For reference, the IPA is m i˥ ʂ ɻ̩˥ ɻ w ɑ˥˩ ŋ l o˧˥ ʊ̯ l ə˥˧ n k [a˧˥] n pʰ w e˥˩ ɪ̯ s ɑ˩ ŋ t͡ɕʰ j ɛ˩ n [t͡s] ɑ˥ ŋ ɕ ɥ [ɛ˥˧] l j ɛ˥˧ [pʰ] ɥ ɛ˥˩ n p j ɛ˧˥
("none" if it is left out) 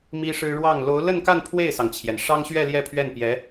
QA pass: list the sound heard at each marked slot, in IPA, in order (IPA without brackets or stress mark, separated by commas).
a˥˧, ʂ, ɛ˥˧, pʰ